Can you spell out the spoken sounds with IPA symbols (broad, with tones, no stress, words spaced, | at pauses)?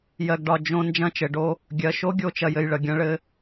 jɜ˧ɡɖɒ˧ d͡ʒõ˧ nd͡ʒɐ̃˧t͡ʃɘ˨ɖo˧ | ɡʲɜ˨ʃo˦ ɡʲo˦t͡ʃɐ˧jɘ˧jɭə˨ ɡʲɐ̃˦ɭɘ˦